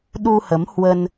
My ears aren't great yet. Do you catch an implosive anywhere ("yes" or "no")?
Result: yes